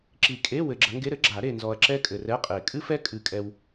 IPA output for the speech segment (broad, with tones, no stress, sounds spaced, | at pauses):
ǁ i˨˩˦ kʼ e˧˥˧ w ɘ˨ ɡ͡ǁ ɐ˨˦ ŋ ɡ e˧˥˧ ɾ ɘ˦˥ ɡ͡ǁ a˨˩˦ ɾ e˨ n z ɔ˨ ɐ̯ ǁ ɛ˦˥ kʼ ɘ˨ r ɛ˧˥˧ qʼ e˨˩˦ kʼ ɨ˦˥ f ɛ˦˥ kʼ ɨ˨˩˦ kʼ ɛ˨ w